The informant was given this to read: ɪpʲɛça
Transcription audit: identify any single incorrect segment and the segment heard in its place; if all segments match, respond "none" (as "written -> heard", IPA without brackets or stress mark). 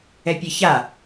ɪ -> ɛ